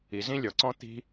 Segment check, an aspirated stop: absent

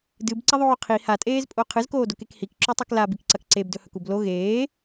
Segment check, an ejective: present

